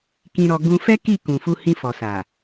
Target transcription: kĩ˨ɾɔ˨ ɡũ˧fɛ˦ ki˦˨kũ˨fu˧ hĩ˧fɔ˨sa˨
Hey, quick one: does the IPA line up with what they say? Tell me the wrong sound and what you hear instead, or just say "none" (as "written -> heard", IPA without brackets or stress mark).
none